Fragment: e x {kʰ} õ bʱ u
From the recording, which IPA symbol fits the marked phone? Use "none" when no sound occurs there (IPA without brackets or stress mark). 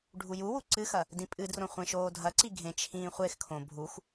kʰ